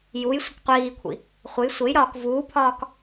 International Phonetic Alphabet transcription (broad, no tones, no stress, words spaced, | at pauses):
juj sʷəkqʷiːkʷʰḭ | χʷej sʷejɾɒːk vuːpʰɒːk